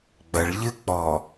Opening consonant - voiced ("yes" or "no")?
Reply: yes